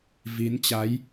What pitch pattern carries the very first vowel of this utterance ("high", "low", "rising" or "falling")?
rising